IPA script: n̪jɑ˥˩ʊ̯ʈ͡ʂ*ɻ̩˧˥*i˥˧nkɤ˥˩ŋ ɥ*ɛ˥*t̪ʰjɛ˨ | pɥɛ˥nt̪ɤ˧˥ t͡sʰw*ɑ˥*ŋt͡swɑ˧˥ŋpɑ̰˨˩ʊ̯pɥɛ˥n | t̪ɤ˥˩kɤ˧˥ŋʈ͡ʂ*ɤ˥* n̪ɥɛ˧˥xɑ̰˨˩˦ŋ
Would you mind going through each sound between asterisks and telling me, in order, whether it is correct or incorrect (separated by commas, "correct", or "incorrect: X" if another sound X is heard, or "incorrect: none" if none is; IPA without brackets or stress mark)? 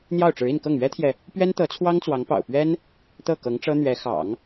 correct, correct, correct, correct